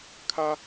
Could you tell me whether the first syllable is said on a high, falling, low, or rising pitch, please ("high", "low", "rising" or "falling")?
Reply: high